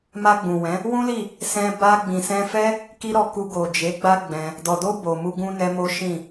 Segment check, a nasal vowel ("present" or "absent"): present